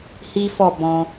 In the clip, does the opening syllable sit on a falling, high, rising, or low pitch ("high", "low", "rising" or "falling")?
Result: high